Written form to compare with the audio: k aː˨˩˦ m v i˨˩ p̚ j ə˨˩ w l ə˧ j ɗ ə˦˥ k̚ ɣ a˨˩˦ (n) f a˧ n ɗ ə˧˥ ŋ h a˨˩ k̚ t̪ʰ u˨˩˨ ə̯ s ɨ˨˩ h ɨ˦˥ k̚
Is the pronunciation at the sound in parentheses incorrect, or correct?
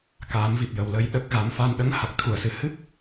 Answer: incorrect